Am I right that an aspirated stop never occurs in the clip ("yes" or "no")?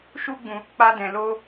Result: yes